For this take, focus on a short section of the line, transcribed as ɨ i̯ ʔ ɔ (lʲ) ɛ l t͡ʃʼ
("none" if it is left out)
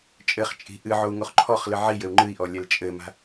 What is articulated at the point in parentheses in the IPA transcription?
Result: lʲ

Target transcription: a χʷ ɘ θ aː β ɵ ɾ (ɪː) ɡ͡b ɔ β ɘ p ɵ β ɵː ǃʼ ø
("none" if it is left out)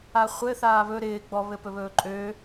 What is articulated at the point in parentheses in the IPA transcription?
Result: ɪː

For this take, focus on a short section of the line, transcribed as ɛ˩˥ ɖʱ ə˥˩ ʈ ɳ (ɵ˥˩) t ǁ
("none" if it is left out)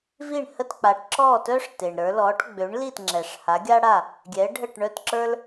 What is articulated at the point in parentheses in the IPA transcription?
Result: œ˥˩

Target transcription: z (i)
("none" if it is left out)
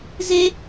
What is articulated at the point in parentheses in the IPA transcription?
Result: e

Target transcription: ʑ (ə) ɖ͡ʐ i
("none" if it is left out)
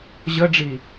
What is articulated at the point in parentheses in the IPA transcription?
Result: ə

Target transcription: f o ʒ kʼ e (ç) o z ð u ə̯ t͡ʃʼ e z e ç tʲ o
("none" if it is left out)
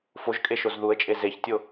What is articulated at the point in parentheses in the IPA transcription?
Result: ʃ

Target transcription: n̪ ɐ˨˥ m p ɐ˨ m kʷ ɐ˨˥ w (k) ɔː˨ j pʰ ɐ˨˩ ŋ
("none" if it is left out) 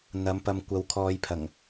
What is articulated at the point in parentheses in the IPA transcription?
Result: kʰ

